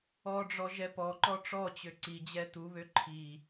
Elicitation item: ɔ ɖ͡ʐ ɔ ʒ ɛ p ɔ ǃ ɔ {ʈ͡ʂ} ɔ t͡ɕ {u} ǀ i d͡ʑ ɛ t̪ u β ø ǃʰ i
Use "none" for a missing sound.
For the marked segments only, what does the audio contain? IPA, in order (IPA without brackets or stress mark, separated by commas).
ʈ͡ʂ, ø